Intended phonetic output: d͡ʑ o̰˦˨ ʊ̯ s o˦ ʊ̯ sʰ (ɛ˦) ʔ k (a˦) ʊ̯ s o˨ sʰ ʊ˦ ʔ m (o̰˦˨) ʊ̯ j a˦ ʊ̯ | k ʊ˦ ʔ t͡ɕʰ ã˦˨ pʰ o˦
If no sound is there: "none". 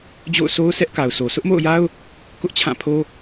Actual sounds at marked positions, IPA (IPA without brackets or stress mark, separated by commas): ɛ˦, a˨, o̰˦˨